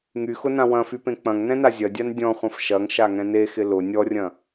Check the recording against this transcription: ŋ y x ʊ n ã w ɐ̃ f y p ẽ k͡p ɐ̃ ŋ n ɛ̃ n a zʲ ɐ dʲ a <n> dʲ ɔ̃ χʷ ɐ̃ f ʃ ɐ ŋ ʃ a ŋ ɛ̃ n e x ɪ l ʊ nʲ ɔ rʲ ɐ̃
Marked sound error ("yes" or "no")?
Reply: no